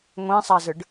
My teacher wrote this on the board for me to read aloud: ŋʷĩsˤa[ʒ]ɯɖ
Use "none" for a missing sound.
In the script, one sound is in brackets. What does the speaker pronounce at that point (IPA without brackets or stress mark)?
z